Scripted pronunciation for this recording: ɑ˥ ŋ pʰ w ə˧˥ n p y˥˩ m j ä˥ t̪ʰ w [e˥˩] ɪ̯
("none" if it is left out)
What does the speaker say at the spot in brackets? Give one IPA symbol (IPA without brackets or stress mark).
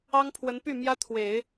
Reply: e˨˩˦